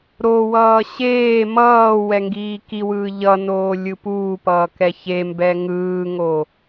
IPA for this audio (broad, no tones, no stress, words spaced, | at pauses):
ɾowʌː ɕeː mʌː wɛŋɡiːkiwɯː ʎʌnoː lʲɯpuːpʌː kɛçembɛ ŋɯːŋo